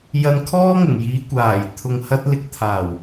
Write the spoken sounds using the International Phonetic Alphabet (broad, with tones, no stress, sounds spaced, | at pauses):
j ɐ˧ n kʰ ɔː˥ ŋ ɪ˨˩ ŋ j iː˨˧ kʷ aː˨˩ j t̪ʰ ʊ˨ ŋ h ɐ˧ t̚ l ɪ˨ k̚ t̪ʰ aː˨˩ w